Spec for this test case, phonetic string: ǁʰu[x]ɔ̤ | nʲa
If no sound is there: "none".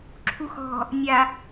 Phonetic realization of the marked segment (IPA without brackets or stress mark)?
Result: x